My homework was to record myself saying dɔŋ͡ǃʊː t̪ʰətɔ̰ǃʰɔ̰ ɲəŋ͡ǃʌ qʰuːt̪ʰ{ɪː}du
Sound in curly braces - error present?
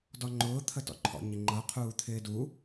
no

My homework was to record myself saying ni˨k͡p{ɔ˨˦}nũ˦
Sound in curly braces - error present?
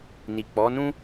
no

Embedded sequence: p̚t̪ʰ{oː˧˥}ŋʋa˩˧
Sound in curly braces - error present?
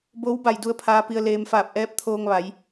yes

